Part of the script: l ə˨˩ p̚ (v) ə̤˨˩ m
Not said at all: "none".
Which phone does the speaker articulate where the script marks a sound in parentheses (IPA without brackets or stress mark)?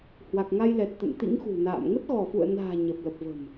v